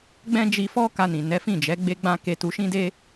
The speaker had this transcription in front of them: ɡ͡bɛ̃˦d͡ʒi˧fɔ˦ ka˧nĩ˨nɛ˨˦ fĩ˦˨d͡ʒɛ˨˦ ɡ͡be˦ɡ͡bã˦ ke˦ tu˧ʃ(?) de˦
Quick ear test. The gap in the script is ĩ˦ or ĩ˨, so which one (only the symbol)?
ĩ˦